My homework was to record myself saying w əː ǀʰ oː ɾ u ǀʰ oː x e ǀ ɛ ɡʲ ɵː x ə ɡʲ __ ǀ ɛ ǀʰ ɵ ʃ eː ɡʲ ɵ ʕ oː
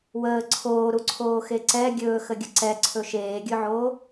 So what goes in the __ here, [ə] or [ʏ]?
ə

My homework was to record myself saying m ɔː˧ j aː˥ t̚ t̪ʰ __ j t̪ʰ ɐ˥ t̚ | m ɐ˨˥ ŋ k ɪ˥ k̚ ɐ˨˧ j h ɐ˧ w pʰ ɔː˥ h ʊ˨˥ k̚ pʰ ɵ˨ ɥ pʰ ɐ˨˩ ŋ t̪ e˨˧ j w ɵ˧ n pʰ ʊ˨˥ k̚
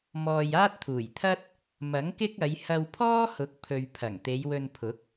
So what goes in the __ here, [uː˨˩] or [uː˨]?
uː˨˩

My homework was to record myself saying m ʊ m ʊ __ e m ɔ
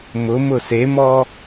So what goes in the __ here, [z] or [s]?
s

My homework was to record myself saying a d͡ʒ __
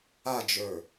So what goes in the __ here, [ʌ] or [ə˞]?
ə˞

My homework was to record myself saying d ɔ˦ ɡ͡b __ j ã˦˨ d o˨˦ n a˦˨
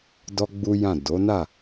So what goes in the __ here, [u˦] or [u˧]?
u˦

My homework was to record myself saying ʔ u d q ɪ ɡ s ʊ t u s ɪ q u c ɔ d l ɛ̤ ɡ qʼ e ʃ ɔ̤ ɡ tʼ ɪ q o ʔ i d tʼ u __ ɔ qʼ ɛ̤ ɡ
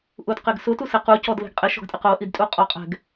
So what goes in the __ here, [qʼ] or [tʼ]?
qʼ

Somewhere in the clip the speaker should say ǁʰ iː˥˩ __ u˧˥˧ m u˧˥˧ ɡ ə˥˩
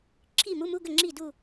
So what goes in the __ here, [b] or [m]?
m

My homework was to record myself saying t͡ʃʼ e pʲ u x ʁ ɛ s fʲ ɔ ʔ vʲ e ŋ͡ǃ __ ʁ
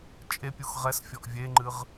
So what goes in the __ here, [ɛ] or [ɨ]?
ɨ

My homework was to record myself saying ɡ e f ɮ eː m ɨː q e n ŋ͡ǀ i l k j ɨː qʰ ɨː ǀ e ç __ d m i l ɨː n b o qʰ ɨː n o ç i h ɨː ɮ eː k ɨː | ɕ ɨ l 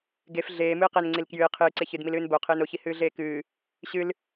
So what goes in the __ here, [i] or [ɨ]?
ɨ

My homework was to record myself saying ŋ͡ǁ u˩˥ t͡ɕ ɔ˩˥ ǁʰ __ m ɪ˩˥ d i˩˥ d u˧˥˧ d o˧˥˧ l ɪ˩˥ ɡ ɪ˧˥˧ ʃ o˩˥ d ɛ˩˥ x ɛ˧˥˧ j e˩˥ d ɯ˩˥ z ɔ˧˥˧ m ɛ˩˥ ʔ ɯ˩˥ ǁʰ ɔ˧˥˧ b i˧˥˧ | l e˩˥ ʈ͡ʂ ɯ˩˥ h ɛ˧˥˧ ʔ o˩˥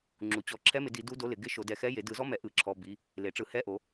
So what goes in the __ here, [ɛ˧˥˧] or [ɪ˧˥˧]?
ɛ˧˥˧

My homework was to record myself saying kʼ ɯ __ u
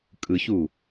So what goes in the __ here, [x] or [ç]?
ç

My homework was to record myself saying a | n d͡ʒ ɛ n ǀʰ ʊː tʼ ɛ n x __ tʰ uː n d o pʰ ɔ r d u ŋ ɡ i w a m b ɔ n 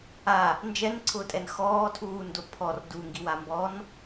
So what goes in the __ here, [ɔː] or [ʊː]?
ɔː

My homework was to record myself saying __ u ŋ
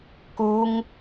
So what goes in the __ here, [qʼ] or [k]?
k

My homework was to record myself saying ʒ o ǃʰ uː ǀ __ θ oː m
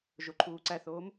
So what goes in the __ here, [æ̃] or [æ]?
æ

